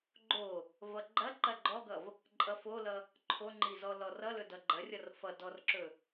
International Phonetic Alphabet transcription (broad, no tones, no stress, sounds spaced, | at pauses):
ɡ͡ǃ o | v ʌ ɡ͡ǃ ɐ ǃ ɐ ɡ͡ǃ ɔ ɡ ʌ v | ǃʼ ʌ f o l ʌ | ǃʰ o ŋ͡ǃ i z ɔ l ɔ r ʌ l ɵ d ʌ ɡ͡ǃ ɐ rʲ ʌ r f ʌ d ɔ r ǁ ɵ